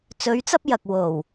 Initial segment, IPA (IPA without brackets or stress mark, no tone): t͡s